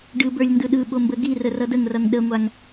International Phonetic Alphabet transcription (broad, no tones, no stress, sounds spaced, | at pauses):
ɖ ɯ b ə˞ lʲ n d ɯ ɗ ɯ ɓ o m b ə ɡ i r ə r ʌ d ə ŋ r ʌ ŋ ɗ ə ŋʷ a ŋ